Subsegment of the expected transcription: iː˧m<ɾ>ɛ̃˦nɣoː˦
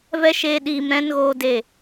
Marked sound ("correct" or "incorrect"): correct